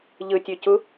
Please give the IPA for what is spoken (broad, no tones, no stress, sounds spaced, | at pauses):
ʎ ɯ tʲ ø c u